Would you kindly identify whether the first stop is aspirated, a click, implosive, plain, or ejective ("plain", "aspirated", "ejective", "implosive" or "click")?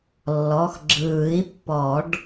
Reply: click